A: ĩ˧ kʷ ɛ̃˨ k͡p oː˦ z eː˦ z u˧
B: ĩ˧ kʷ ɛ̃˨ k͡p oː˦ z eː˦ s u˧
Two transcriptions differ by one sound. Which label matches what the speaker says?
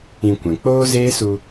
B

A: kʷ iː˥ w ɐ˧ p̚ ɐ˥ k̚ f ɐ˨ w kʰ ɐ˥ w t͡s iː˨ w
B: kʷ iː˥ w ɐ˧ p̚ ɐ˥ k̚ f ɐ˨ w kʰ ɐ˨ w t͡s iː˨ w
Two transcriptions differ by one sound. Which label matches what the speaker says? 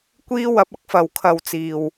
B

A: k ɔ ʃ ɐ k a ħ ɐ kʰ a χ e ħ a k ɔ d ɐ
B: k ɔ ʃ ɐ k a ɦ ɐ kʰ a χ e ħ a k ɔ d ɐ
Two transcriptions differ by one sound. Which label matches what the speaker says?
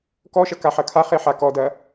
A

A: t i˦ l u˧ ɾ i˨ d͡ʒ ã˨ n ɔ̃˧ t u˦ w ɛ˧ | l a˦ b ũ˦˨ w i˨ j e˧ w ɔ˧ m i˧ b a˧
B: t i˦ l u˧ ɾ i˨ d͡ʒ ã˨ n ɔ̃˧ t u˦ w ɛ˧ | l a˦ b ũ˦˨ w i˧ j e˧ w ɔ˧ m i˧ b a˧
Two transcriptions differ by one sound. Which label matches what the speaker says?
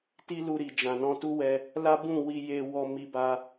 B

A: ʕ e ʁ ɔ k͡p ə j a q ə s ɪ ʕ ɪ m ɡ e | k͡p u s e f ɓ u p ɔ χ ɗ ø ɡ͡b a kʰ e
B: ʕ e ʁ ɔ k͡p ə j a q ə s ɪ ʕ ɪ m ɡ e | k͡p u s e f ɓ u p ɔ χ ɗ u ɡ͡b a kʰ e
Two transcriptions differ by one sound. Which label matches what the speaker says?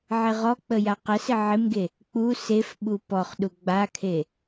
B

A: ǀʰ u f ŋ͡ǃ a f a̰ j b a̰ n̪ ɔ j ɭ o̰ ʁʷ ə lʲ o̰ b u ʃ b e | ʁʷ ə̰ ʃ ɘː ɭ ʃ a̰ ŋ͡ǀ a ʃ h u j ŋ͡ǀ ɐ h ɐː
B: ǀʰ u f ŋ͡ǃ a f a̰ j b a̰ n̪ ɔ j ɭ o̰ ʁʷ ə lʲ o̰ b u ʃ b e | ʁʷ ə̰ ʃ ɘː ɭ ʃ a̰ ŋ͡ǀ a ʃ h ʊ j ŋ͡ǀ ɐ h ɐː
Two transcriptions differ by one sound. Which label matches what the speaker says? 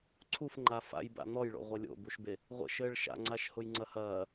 B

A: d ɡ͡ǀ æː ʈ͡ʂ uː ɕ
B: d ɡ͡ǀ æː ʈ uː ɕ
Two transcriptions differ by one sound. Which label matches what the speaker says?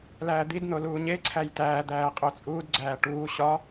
B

